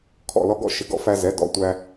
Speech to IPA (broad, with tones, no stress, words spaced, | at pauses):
kʰɔ̰˨˩lɔ˦ɡɔ̰˦ ʃɪ˩˥ɡɔ̰˦fæ˦ zɛ˩˥dɔ̰˩˥ tʷæ˦